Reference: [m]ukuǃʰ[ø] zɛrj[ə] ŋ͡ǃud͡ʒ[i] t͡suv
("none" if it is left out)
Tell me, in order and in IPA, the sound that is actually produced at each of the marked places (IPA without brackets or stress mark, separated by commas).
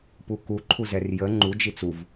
p, u, ə, i